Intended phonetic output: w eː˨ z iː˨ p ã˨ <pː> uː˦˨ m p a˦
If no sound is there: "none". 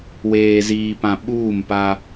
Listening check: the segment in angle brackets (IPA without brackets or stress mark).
ɓ